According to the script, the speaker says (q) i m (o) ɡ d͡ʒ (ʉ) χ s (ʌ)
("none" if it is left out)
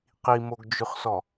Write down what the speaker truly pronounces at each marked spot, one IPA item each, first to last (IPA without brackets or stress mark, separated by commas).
q, o, ʉ, ɔ